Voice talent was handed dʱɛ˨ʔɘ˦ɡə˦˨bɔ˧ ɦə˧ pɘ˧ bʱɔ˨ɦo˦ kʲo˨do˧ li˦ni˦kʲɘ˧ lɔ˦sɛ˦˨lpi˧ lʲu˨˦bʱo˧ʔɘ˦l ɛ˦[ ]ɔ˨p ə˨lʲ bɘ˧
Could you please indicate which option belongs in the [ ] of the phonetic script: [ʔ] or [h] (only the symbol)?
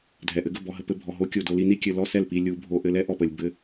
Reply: ʔ